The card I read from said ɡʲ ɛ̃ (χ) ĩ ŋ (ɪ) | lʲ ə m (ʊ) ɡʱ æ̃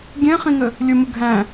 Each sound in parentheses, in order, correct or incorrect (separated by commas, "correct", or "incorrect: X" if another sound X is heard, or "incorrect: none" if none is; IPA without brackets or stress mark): correct, incorrect: ə, correct